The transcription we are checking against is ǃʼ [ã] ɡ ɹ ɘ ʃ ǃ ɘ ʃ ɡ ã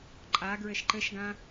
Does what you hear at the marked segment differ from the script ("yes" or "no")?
yes